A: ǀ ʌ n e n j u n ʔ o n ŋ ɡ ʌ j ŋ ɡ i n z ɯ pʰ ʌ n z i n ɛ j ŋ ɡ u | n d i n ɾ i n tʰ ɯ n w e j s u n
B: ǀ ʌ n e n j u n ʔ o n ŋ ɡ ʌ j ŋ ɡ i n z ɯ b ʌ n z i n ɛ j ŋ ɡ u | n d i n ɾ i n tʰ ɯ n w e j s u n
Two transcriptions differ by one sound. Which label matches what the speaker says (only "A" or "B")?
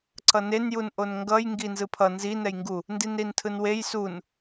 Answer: A